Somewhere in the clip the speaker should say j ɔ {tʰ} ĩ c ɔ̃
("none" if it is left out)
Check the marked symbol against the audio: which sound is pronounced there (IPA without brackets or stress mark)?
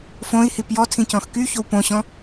tʰ